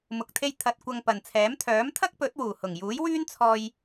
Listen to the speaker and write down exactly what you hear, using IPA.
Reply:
m ʊ˨ k̚ t̪ʰ e˧ j t̪ʰ ɐ˧ t̚ kʷ ɐ˧ ŋ p ɐ˨ n t͡sʰ ɛː˨˥ m t̪ʰ œː˨˥ m t̪ʰ ɐ˥ k̚ p ɵ˨˥ t̚ w uː˨˩ h ʊ˨˩ ŋ j uː˨˥ j w yː˥ n t͡sʰ ɔː˧ j

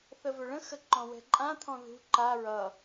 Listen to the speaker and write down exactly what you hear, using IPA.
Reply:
θ ə v ɵ ɭ ə̃ x ə ǃ ɔ̃ w ɛ̤ ǃʼ ã t̪ʰ ɔ̃ ð ṳ ǃ a ɹ ʌ

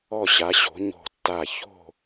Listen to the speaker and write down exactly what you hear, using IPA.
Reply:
ɔ˧˩ ɕ a˩˧ ɕ o̤˩˧ ɲ o̤˧˩ tː a˧˩ ç o̤˧˩

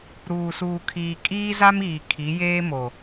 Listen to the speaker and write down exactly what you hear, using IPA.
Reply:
ɾ uː˨ s uː˨ kʰ iː˨ kʼ iː˦ z a˦ m iː˨ kʰ i˨˦ j eː˦ m o˨

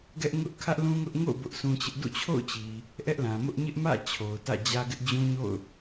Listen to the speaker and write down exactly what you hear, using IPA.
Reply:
ɡ ɛ˦ ʔ ŋ ʊ˦ ʔ kʰ ä˦ ʔ l ũ˦ ŋ ʊ˦ ʔ ŋ o̰˦˨ ʊ̯ b ʊ˦ ʔ s ũ˦ t͡ɕ ɪ˦ ʔ d ṵ˦˨ t͡ɕʰ o̰˦˨ ʊ̯ t͡ɕ i˨ | ʔ ɛ˦ ʔ l ã˨ m ʊ˦ ʔ ɲ ɪ˦ ʔ m ä̰˦˨ t͡ɕʰ o˨ ʊ̯ t ä̰˦˨ d͡ʑ ä˦ ɡ ɪ˦ ʔ d͡ʑ ũ˦ ɲ o̰˦˨ ʊ̯

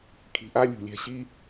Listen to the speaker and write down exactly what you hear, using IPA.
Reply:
kʰ i̤˧ ʔ a˦ lʲ ṳ˧ lʲ ɛ̤˦ ɕ i˦

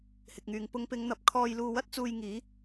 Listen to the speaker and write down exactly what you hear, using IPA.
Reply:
h ɪ˨ k̚ ŋ yː˨ ŋ p ʊ˨˧ ŋ p ɪ˨˧ ŋ n̪ ɐ˨ p̚ kʰ ɔː˧ j l uː˧ w ɐ˥ t̚ t͡s uː˧ j ŋ iː˨˥

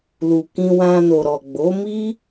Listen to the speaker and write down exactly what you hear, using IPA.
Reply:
l u˨ k ĩ˧ w ã˧ n o˨ ɾ ɔ˨ ɡ͡b o˨˦ m i˦

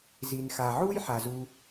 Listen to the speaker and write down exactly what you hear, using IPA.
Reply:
z i˨ n x a˨ ʕ u˥ j ħ a˨ z u˦

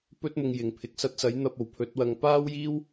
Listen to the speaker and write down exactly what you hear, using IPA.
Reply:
p ɵ˥ t̚ m ʊ˧ ŋ j ɪ˨˩ ŋ pʰ ɪ˨ k̚ s ɐ˧ t̚ s ɐ˨˥ j n̪ ɐ˧ p̚ o˨˩ w pʰ ɵ˨˥ t̚ w ɐ˧ ŋ p aː˥ w j iː˥ w

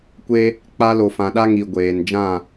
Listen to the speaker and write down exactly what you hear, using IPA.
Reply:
kʷ e˦ | k͡p a˦ l o˨ f ã˨ ɗ a˦ ŋ i˨ ɡʷ eː˨ n d͡ʒ ã˦˨

